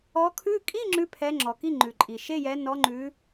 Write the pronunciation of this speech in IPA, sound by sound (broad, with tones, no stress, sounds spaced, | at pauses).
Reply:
ɔ˨˦ kʰ ʉ˧˥˧ kʼ i˧˥˧ ŋ͡ǁ ʉ˧˥˧ pʰ ɛ˨˦ ŋ͡ǁ ɔ˩ k i˧˥˧ ŋ͡ǃ ʉ˩ ǃʼ i˩ ʃ e˧˥˧ j ɛ˨˦ n ɔ˨˦ ŋ͡ǃ ʉ˨˦